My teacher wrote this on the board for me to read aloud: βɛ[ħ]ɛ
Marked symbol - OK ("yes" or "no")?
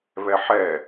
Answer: yes